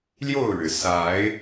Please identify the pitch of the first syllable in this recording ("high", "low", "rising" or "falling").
falling